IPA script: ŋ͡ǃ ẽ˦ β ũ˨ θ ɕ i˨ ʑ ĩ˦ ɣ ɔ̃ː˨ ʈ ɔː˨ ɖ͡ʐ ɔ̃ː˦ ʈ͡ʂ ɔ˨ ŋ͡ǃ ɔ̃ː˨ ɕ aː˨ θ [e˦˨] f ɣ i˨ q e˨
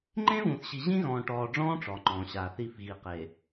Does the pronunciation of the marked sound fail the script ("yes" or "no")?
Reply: yes